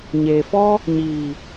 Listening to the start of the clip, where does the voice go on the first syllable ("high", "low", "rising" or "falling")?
low